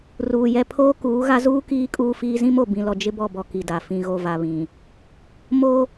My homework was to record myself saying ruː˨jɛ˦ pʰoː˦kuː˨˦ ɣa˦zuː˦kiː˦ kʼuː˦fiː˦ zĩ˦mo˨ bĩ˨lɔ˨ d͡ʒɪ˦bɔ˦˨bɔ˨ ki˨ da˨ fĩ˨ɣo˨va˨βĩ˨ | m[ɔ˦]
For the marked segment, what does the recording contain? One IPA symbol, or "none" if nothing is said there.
o˦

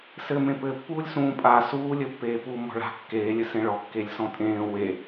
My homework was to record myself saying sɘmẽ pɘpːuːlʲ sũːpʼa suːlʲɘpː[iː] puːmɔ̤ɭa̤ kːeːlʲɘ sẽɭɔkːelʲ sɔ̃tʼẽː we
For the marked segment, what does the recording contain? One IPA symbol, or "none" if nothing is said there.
eː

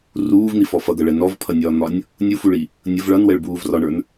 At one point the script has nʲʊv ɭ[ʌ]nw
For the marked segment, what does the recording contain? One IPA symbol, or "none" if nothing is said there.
ʌ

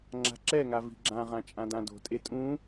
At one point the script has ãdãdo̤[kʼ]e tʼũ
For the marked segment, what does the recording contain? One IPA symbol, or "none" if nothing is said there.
tʼ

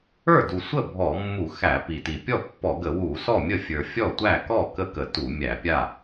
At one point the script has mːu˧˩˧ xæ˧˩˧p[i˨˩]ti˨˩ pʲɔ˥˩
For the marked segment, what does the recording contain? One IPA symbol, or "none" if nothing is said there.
i˨˩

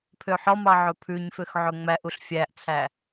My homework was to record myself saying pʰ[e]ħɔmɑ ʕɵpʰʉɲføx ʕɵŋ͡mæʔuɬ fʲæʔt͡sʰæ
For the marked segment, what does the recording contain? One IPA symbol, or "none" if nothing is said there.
ø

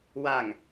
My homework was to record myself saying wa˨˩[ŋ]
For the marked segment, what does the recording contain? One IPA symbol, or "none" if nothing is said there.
ŋ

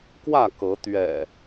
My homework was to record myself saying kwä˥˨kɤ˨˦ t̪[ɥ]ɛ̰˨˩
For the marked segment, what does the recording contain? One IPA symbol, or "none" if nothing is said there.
ɥ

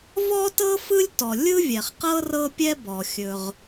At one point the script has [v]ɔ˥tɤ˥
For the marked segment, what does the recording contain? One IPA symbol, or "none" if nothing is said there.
v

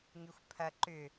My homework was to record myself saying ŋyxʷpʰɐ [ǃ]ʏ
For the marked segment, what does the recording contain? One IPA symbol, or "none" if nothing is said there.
ǃ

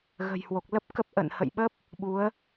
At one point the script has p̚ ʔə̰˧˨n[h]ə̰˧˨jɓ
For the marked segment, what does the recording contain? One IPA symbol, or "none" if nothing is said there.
h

